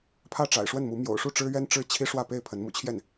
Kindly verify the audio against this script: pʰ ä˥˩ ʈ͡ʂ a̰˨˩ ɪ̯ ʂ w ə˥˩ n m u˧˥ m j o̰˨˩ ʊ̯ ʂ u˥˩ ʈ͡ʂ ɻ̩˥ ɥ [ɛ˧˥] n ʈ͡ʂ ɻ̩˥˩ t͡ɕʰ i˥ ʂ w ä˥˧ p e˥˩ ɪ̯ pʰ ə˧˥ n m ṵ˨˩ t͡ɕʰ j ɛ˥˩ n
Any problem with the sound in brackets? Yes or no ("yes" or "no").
yes